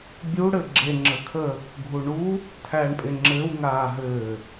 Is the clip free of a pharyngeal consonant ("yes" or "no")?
yes